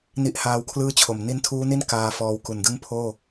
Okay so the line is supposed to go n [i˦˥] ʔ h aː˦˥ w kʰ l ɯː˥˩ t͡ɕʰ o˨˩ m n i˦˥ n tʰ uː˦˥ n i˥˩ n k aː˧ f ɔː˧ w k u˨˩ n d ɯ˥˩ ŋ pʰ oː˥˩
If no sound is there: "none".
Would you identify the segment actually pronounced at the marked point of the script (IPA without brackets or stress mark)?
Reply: i˦˥